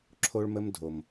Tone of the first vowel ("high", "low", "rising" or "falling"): high